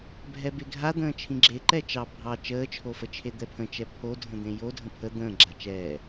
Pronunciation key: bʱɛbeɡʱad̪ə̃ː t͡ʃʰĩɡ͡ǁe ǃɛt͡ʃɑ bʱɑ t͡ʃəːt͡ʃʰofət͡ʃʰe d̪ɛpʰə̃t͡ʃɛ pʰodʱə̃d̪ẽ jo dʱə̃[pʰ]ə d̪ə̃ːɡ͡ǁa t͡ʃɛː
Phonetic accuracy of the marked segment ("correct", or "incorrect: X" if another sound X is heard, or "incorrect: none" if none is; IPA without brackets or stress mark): correct